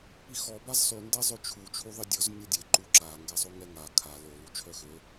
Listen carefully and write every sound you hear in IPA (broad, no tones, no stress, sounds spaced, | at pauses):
p i x ɔ b a z sˤ y n d ɛ zˤ ø t͡ʃʰ u t͡ʃʰ u ðˤ i dʲ ɔ z nʲ ɔ dʲ e ǃ u ǁ a ŋ ɡ ɛ sˤ o ŋ ɛ ŋ a kʰ a l o l u t͡ʃʰ œ x ø